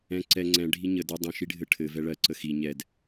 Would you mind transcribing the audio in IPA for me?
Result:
ɛ̃ ǀ ɛ ŋ͡ǀ ɛ̃ ɖʱ i ɲ ə d ə dˤ ə̃ ʃ i ɖʱ ɘ ʈʰ ɘ v ɛ ɭ ɜ ǀ ə x i ɲ ɛ d

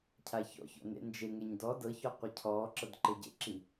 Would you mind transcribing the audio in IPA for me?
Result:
cʰ a ç ɔ̰ ç ɔ̰ n ḛ n d͡ʒ e ŋ ɛ ɲ d ɔ d ɤ ç ɔ qʷ ɛ cʰ ɔː ǁ ɤ d ǃ e ɟ ḛ ǁ i

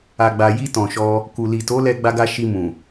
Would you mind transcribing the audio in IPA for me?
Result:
a˨ ɡ͡b a˨ j i˧ t ɔ̃˨ ʃ ɔ˧ | k u˨ l i˨ t o˨˦ l ɛ˧ ɡ͡b a˧ ɡ a˧ ʃ i˧ m ũ˨

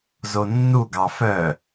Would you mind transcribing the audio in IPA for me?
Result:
z o nː u ɡ ɑ f œ

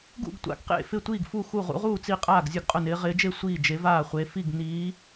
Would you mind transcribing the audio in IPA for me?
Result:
ɡ ṵ˥˩ ɡ tʷ a̰˨˦ ɡ q ḛ˥˩ f ɪ˥˩ tʷ iː˥˩ ɡ f u˥˩ x u˥˩ ʁ ṵ˨˦ ʁ uː˥˩ t͡s i˥˩ qʼ aː˥˩ ɡ zʲ ʊ˥˩ ɡ qʼ ʊ˥˩ n ɪː˨˦ ʁ ɪː˨˦ d͡ʒ e˥˩ sʷ iː˥˩ d͡ʒ e˨˦ v aː˥˩ χʷ e˨˦ f i˥˩ ɡ n iː˨˦

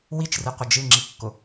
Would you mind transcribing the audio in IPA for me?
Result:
w i t͡ʃ r ɨ qʷ ə d͡ʒ ɨ ŋ͡ǁ i kː ʊ

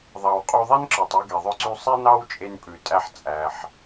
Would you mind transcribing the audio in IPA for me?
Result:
ðˤ ɑ˩ w qʼ o˧ ðˤ ɛ˥ n ǁ œ˩ tˤ o˧ ɡ e˩ ðˤ œ˧ ǀ y˧ sˤ i˥ n ɑ˥ w t͡ʃʼ e˧ n pʼ ʉ˩ tʼ æ˧ ħ t͡sʼ æ˩ ħ

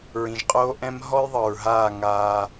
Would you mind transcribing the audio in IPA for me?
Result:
ɹ ĩ˨ ʒ qʼ oː˦ ʔ ɛ̃˦ m ɦ ɔ˦ j ðˤ ɤ˨ ɹ ɦ aː˦˨ ŋ aː˦

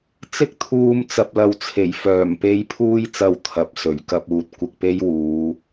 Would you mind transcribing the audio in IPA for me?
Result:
t͡s ɪ˥ k̚ t̪ʰ uː˧ m t͡s ɐ˨ p̚ l ɐ˨ w t͡sʰ e˨˩ j f œː˨˩ m p e˨˧ j pʰ uː˧ j t͡s ɐ˨ w t̪ʰ ɐ˨˥ p̚ s ɵ˨˩ ɥ k ɐ˧ p̚ uː˨ t̚ kʷ ɪ˧ k̚ p e˥ j w uː˨˧

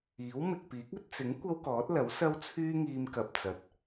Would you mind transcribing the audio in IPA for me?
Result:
iː˨˥ w m ɪ˨ k̚ p iː˨˥ k̚ ɵ˧ t̚ t͡s ɪ˨˥ ŋ kʷ ɐ˥ w k ɔː˨˥ t̚ l ɐ˨˥ w s ɐ˧ w t͡sʰ yː˧ ŋ iː˧ m k ɐ˨ p̚ t͡s ɐ˨ t̚

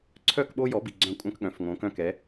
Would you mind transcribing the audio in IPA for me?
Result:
ǀʰ œ˦˨ k ɓ o˦ j ɔ˨˦ b i˨ ɡ͡ǀ œ̃˦˨ kʷʼ œ̃˦ k ɠ œ̃˨˦ f ŋ õ˨˦ k œ̃˦ k ɛ˨˦

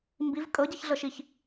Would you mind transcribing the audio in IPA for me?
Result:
m b i v kʼ ɤ ɟ e ç ɮ ɤ ʃ i ç

